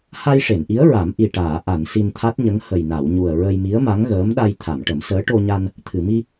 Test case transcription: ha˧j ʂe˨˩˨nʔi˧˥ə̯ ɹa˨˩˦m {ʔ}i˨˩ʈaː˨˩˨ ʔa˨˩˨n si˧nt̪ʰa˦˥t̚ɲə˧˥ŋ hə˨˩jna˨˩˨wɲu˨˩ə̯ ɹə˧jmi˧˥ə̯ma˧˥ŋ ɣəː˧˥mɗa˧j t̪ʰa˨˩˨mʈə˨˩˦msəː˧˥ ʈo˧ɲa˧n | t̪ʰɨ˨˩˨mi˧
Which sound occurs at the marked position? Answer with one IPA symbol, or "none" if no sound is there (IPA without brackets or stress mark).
ʔ